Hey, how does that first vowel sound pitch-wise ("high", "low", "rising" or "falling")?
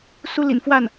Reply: high